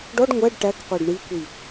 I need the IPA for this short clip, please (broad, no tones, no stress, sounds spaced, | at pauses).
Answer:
ɖ ɔ ɖ ŋʷ æ ɖ ʈ æ k qʷ æ ɖ ɳ i kʷ i